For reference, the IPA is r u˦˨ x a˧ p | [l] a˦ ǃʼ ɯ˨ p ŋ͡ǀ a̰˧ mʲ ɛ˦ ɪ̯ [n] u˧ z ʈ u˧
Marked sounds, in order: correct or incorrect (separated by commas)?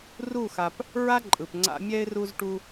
incorrect, incorrect